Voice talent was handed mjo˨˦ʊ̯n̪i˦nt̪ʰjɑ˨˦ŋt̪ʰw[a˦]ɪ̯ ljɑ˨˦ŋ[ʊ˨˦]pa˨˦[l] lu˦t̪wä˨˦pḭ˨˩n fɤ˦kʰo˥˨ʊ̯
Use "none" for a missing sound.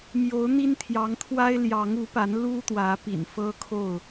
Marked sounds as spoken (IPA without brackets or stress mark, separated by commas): a˦, u˨˦, n